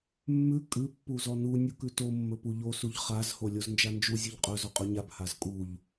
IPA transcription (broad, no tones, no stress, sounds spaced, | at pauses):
mː ʉ kʼ ʉ pː u z ɔ n u nʲ u k ʉ t o mː ɵ p u ʎ o s u ʎ χ a z h o lʲ o z n d͡ʒ a n d͡ʒ u zʲ u ʎ qʼ ɵ z ɔ qʼ ɵ ɲ a b h a z kʼ u ʎ